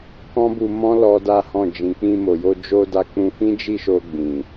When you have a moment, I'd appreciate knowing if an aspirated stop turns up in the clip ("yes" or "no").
no